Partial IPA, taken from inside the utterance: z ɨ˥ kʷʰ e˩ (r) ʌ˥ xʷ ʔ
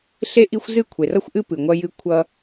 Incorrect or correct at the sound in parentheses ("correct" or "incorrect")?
correct